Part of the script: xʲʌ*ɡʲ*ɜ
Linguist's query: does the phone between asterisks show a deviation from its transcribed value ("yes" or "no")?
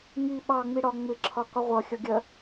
no